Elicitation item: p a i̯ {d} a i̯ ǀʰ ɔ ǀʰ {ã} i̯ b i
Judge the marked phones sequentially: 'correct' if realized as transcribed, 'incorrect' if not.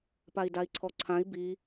correct, correct

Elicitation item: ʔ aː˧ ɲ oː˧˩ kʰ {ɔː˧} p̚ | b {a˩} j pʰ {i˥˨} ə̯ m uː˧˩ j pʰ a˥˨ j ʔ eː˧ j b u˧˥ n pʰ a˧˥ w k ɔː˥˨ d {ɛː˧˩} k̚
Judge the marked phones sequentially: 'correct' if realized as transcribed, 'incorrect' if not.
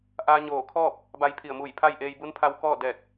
incorrect: ɔː˥˨, incorrect: a˧, incorrect: i˧˩, correct

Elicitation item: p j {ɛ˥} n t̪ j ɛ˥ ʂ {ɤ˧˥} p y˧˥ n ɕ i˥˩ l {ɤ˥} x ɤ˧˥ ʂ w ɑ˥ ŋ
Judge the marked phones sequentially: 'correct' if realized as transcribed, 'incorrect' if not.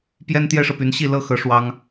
correct, incorrect: ɤ˨, correct

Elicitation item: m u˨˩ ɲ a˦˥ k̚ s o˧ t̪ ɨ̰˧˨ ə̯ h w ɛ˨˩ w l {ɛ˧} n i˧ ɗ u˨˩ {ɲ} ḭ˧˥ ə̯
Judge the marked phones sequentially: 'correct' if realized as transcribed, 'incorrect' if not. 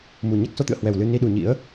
incorrect: ɨ˧, correct

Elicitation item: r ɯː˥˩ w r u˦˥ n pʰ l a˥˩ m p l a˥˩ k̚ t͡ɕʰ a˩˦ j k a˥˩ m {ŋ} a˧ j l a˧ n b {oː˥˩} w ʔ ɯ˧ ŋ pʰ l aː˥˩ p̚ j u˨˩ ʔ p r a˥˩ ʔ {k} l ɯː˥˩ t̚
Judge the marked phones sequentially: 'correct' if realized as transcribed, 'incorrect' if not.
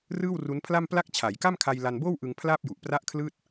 incorrect: kʰ, correct, incorrect: kʰ

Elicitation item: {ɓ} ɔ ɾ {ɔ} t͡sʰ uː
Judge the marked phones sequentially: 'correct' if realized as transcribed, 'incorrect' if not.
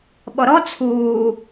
correct, correct

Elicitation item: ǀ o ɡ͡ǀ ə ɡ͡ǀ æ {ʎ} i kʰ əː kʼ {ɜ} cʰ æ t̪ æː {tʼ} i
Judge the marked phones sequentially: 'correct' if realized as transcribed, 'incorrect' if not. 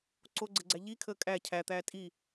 correct, incorrect: æ, correct

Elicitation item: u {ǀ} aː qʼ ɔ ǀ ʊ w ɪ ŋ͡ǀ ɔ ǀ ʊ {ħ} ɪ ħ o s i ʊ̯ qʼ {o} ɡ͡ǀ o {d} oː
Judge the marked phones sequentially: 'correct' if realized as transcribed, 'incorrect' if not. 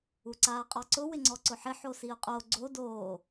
correct, correct, correct, correct

